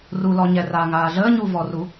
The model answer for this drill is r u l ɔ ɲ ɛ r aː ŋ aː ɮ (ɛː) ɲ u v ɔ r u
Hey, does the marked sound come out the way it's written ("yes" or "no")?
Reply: no